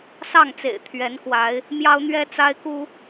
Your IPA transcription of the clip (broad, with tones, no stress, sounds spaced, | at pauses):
s ɑ˥˨ ŋ t͡s ḛ˨˩ ɪ̯ t̪ʰ ɥ ɛ˨˦ n k w a˨˦ ɪ̯ | m j ɑ˦ ʊ̯ n̪ ɥ ɛ˦ t͡s a˦ ɪ̯ k u˦